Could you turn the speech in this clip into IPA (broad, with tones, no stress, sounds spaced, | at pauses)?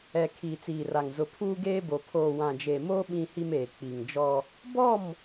ɛ˨ kʰ iː˨ t͡s iː˨ r a˨ ŋ z ʊ˨ pʰ uː˦ ɡ eː˦ b o˨ pʰ oː˨ w ã˨ d͡ʒ e˨ m oː˦ ɓ ĩ˦ h i˦ m eː˨ k͡p i˨ ŋ d͡ʒ ɔ˦ | b ɔ˦˨ m